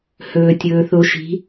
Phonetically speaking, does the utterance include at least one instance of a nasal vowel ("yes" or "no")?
no